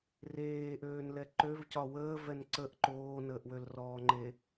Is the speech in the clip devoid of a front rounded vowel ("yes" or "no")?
no